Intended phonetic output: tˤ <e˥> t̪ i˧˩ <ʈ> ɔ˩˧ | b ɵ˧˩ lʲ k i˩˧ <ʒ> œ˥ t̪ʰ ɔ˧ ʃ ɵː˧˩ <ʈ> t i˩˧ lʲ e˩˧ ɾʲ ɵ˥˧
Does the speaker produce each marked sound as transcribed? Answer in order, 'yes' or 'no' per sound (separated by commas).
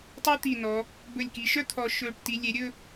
yes, no, no, yes